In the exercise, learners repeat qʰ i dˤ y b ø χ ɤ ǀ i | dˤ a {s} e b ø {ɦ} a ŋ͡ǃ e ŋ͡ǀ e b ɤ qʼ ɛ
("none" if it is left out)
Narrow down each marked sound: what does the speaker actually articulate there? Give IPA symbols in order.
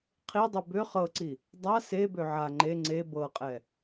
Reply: s, ʕ

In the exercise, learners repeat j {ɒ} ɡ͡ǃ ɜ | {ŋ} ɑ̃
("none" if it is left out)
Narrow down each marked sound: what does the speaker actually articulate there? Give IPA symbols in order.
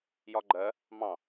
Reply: ɒ, m

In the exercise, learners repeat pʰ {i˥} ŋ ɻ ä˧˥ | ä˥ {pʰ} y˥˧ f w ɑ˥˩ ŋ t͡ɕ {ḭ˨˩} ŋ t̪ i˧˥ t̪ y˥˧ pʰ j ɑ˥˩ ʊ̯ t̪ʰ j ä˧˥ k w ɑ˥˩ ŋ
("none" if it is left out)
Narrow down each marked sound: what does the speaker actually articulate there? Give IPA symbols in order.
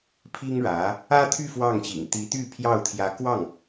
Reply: i˥, t̪ʰ, ḭ˨˩

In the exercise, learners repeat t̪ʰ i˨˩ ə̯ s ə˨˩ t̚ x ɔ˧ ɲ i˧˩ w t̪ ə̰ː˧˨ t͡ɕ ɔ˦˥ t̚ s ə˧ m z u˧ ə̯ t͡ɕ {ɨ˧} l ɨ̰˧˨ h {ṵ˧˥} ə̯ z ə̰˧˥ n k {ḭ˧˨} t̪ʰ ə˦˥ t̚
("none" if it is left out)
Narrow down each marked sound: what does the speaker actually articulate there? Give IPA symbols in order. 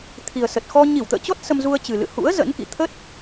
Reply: ɨ˨˩, ṵ˧˥, ḭ˧˨

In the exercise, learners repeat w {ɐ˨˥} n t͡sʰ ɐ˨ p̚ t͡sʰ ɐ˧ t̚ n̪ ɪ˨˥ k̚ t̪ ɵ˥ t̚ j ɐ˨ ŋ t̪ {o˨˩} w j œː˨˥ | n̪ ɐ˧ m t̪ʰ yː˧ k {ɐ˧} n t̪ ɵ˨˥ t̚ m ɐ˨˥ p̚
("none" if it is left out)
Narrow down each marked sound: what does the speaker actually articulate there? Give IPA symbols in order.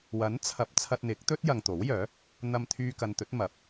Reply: ɐ˨˥, o˨˥, ɐ˨

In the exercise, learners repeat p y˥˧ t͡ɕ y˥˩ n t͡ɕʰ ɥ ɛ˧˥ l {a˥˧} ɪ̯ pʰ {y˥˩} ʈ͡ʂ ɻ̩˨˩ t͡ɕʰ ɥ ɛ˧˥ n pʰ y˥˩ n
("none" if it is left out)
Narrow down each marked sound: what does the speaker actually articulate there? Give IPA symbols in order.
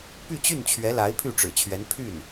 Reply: a˧˥, y˥˩

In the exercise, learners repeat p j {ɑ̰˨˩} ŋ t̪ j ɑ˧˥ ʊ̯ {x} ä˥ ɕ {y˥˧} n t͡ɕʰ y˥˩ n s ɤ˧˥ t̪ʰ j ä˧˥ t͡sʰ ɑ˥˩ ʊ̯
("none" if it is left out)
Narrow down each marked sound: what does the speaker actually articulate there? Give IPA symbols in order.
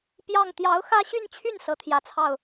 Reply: ɑ˥˩, x, y˥˧

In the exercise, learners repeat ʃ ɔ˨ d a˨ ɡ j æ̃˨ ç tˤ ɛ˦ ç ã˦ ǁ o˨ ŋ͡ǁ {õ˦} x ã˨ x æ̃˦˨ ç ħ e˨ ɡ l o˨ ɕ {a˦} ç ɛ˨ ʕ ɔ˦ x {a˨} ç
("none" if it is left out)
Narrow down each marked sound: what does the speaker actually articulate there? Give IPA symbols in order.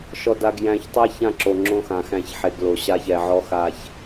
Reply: õ˦, a˦, a˨

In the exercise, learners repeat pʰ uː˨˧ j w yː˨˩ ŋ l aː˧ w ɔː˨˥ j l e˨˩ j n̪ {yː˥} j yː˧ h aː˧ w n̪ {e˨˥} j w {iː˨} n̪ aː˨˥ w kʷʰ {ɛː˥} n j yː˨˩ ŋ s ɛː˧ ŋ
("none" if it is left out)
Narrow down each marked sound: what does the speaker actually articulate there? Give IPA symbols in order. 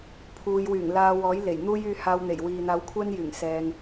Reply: uː˥, e˨˩, iː˨, ɛː˥

